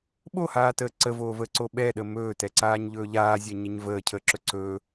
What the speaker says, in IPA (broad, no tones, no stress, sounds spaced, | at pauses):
ɓ o h aː t əː ǀ ə v oː v əː ǀ o ɓ ɛ ɗ ə m ɵː t ɛ ǀ aː ɲ ʎ ɵː ʎ aː zʲ ɛ ɲ ə ɲ v əː cʰ əː ǁ ɵ ǀ ɵː